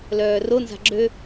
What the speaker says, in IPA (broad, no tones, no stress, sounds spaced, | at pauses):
l œː r o n z a̤ ɡ͡ǁ ø